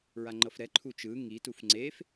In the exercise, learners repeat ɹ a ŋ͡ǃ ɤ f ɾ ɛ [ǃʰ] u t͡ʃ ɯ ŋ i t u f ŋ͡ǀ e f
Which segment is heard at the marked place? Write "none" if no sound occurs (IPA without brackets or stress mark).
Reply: ǃʰ